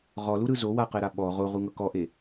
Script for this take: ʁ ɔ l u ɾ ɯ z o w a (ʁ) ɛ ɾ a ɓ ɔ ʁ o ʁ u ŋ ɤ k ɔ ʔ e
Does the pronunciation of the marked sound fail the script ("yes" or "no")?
yes